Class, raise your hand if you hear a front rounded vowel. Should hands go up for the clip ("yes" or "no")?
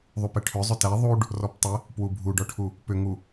yes